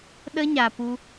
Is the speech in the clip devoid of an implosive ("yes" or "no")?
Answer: no